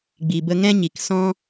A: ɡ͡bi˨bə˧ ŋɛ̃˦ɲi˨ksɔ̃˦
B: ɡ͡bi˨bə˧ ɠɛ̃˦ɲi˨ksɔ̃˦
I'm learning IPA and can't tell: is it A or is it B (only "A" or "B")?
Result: A